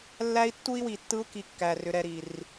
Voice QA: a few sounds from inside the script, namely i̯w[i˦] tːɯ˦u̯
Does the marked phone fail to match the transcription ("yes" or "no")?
yes